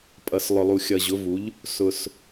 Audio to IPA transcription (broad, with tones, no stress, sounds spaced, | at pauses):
pʼ ʌ˨ s lˠ ʊ˨ lˠ u˨ xʲ ʌ˨ ʑ ʊ˨˦ v u˨˦ ʎ | s ʊ˨ s